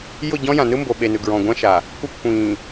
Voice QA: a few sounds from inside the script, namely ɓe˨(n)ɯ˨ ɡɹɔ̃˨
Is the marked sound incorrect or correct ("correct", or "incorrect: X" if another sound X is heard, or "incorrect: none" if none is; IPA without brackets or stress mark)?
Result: correct